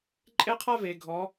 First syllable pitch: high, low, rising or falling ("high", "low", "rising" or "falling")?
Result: high